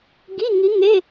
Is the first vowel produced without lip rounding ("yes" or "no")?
yes